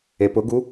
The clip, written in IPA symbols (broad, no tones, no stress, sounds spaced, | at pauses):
e p ʊ ɡ u